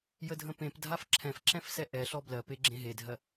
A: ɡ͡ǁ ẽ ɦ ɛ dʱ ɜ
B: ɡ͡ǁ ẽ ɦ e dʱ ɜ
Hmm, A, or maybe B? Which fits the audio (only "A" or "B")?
B